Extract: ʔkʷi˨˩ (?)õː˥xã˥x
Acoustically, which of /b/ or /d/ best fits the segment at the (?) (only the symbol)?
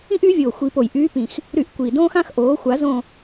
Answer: d